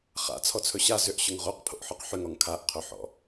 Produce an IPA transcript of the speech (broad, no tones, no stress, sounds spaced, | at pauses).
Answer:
χ a̰ t͡sʰ ɔ t͡sʰ ɵ ɕ a z ʏ ʔ ɕ ɵ ŋ ʁ o q pʰ o̰ ʔ ħ ɔ q ħ ʏ ŋ ɔ ŋ kʰ a ʔ qʰ ɵ ħ ɔ̰